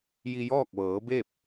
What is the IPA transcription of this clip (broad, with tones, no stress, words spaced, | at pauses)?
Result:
ji˧jɔː˥˨k̚ʋɤː˩˧be˥˨p̚